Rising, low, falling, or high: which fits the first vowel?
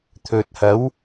low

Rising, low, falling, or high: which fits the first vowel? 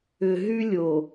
low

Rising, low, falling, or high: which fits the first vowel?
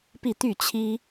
falling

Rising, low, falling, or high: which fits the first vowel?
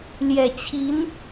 low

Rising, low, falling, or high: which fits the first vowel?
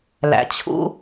low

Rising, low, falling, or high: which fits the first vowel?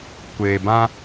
low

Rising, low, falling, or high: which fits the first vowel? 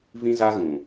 high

